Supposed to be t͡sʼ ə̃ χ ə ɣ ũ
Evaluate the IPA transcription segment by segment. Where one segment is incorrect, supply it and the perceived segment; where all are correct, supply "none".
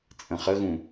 none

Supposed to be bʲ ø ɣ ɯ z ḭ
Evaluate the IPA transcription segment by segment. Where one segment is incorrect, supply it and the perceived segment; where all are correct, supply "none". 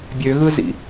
none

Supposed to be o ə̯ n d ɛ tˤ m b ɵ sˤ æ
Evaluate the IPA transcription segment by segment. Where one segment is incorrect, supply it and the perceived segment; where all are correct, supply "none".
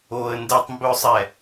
æ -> ɛ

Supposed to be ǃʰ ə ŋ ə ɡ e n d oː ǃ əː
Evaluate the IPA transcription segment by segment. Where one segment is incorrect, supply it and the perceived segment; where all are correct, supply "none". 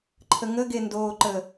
none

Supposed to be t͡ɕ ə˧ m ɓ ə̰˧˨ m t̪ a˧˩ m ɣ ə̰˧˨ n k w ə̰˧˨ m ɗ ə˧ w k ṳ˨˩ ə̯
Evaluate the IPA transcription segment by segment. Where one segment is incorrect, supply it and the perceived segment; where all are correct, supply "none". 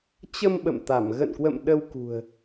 none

